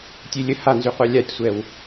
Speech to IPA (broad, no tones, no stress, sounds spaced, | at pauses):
tʲ e lʲ ə h a n z y qʷ a lʲ a tʲ sʷ ɛ w